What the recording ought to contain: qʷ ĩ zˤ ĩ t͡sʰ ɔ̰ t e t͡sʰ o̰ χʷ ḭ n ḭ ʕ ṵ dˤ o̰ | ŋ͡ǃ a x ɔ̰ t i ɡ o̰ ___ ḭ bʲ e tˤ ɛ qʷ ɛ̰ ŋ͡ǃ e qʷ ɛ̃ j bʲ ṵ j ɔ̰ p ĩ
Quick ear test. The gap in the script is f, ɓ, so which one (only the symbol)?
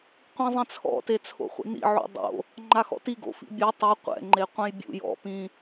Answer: f